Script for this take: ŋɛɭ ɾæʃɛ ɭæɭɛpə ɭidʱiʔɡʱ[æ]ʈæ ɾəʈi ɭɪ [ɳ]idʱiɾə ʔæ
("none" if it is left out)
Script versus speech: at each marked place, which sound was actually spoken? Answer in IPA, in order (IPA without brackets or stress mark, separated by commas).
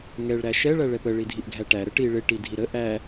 æ, ʈ